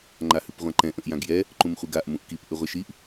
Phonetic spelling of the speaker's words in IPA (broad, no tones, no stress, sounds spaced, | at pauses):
ŋ͡ǃ a h ʉ p ʁʷ ã ǃ ɛ̃ ʔ ə̃ ʔ j ã ɡ j ɛ | ǃ ũ m χʷ i ɡ a ʔ m ũ ʔ k i p ʔ ʉ ʁʷ ɛ ʃ i ʔ